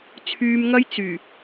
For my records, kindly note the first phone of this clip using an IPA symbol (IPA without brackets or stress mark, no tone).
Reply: t͡sʰ